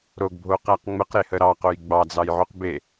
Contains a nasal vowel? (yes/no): no